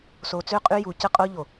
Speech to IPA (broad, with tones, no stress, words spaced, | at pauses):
so˨t͡sø˦˨qʼy˦ju˨ cə˦˨qʼo˦ ʎo˨